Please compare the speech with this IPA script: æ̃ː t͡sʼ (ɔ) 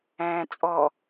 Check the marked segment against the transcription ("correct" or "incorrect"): correct